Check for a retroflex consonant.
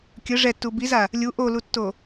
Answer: present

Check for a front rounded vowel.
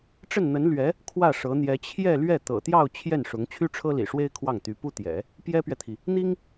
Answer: present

